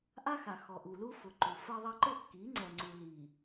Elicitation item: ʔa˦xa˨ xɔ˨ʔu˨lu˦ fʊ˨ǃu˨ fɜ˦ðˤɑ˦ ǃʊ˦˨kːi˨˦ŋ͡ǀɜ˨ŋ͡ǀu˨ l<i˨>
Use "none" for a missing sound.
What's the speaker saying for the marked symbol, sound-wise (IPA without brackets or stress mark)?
i˨